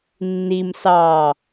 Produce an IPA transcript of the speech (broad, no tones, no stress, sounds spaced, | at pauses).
nː i m s ɑ